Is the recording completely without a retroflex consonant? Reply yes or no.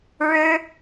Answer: no